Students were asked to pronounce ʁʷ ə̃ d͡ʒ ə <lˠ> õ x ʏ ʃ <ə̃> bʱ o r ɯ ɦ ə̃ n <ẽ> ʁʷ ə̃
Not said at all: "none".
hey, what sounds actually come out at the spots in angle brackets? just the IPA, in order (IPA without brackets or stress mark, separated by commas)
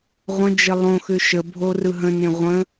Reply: lˠ, ə, ẽ